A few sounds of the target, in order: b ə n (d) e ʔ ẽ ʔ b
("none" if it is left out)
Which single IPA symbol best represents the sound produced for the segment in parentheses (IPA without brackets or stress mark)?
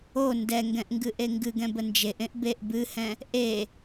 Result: d͡ʒ